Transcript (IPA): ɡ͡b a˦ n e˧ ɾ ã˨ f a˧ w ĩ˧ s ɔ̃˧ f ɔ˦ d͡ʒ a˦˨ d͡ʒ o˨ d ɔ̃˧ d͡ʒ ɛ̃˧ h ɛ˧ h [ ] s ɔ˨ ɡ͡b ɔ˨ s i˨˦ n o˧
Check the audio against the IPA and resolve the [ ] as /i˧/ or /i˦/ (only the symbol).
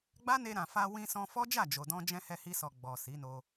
i˧